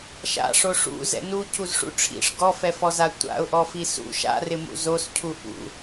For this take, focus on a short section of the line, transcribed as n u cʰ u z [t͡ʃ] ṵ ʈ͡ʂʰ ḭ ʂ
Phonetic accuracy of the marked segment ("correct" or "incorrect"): incorrect